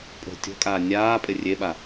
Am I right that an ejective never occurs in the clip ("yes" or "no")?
no